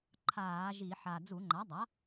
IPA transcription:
ǃʰ aː˧˩˧ ʒ i˧˩˧ ħ a˨˩ d͡z u˧˩˧ ŋ͡ǃ a˩˥ dˤ a˩˥

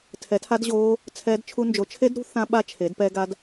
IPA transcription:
tʰ ɛ˨˦ tʰ a˦˥ d ʑ oː˦˥ | t͡sʰ ɛː˦˥ d t͡ʃʰ u˦˥ n d͡ʒ o˨˦ t͡ʃʰ e˦˥ d ɾ ṳ˦˥ θ ã˦˥ ɓ a˦˥ t͡ʃʰ e˨˦ d p ɛ˦˥ ɡ a˦˥ d

